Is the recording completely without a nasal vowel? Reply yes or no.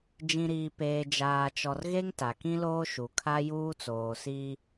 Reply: no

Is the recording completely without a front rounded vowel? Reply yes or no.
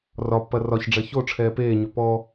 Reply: no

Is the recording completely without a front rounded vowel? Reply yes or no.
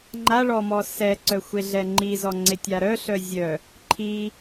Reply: no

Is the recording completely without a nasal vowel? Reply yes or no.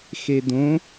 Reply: no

